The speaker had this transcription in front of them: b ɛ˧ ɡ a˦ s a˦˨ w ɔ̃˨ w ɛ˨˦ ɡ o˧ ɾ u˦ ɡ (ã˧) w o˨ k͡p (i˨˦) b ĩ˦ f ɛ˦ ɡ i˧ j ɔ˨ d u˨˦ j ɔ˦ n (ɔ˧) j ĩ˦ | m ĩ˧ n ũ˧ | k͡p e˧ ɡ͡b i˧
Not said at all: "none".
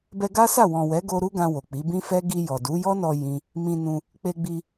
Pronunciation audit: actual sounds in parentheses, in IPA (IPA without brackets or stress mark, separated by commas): ã˧, i˨˦, ɔ˧